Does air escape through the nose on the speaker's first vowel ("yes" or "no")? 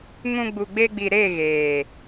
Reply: yes